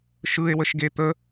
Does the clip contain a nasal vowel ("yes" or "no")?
no